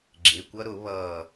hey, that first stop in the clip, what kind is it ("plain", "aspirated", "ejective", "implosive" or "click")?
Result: click